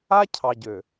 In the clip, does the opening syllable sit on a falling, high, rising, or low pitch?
high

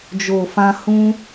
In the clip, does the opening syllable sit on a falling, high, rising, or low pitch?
low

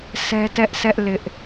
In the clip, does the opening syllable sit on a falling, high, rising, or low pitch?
high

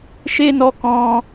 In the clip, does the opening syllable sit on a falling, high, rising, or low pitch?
high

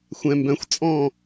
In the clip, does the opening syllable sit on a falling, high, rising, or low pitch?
low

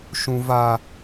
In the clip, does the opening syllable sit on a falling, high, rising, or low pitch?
high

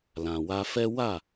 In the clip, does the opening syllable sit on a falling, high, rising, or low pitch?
low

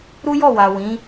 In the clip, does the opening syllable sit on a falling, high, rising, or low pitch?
high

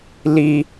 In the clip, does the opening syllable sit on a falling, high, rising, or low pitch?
high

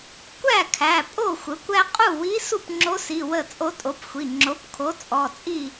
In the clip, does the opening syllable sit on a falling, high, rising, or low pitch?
falling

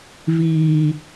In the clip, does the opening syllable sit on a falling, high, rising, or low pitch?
low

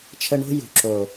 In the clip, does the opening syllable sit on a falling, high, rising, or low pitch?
high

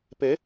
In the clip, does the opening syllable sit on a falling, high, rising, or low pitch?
rising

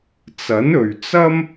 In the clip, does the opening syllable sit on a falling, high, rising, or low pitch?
rising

